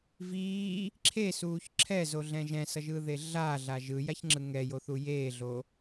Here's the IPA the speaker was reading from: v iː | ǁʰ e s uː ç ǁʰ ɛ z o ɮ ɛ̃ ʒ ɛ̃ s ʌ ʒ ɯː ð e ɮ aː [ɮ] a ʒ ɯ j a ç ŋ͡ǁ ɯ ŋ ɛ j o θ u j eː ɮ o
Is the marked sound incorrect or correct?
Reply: correct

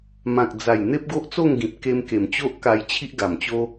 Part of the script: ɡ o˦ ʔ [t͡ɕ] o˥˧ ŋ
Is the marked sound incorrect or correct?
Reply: incorrect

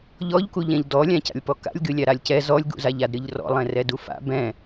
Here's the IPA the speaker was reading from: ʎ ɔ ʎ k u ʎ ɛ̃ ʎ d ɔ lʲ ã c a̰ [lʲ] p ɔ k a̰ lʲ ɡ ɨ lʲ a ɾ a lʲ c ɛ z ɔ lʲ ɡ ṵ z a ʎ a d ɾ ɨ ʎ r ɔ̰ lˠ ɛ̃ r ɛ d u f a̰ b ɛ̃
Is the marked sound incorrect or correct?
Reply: correct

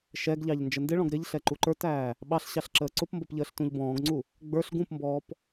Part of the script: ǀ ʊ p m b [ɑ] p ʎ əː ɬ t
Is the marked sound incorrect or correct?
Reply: incorrect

